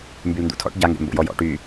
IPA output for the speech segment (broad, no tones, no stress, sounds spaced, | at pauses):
m b y l n d ṵ tʰ ɔ̰ ʈ ɟ a ŋ ɡ ɛ̰ m b o̰ j ɔ j ɔ̰ ʈ y